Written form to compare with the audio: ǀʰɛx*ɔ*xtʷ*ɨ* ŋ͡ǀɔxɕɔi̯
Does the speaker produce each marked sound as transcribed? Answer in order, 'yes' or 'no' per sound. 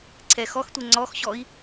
yes, no

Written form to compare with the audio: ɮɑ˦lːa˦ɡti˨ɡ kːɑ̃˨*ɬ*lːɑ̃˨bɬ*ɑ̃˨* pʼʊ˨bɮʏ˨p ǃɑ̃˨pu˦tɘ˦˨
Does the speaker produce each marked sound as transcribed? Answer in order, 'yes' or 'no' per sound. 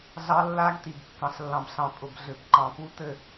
yes, yes

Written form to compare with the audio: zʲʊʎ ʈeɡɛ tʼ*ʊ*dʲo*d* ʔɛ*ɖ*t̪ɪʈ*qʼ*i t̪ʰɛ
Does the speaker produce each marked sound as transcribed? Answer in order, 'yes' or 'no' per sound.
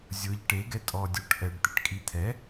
no, no, yes, no

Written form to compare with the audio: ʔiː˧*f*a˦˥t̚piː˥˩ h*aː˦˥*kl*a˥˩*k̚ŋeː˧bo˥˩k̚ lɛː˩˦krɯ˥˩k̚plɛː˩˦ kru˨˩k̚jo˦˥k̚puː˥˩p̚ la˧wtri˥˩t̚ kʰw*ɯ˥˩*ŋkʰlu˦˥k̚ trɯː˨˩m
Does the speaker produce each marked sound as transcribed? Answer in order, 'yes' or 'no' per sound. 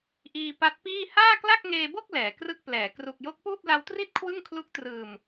no, no, yes, yes

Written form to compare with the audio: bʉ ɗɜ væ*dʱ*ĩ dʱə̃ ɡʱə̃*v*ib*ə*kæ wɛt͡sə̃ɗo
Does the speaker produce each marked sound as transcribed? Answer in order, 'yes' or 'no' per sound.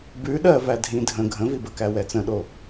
yes, yes, yes

